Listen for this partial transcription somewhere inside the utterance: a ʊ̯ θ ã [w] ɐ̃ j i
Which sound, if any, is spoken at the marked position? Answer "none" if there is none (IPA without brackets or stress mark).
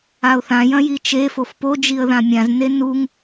j